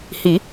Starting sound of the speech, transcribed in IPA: h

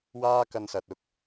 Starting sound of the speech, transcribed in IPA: w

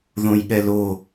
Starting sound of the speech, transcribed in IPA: ð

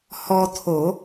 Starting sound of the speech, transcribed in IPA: h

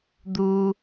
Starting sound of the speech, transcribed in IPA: d̪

